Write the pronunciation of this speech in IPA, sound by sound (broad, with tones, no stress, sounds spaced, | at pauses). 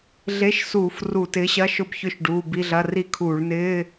ɮ e˧˥˧ ʃ s uː˧˩˧ f r u˧˩˧ t ɪː˨˥ ɕ ɐ˧˥˧ ʃ ʊ˦˨ b ç ʏ˦˨ ʃ ɖ uː˩˧˩ b i˧˥˧ ɮ ɐ˧˥˧ r i˦˨ kʰ uː˧˩˧ ɭ n ɪː˧˥˧